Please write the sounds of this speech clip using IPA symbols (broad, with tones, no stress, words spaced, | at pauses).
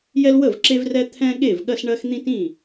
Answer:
jɛ˦lwə˥˩vǁe˦vrɛ˦ t̪ʰɛ̃˦ ɠe˥˩vɠɜ˦sɳɜ˦x n̪ĩ˦tĩ˥˩